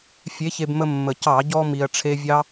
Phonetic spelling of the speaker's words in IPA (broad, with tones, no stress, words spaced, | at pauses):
fʲe˨˥çe˧bmə˧ mːə˨˩cɑ˧˩˧ɟɔ˧ mi˧ɐ̯ʈ͡ʂʰe˥ vʲɑ˥